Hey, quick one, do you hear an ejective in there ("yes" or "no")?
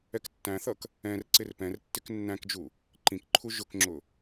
no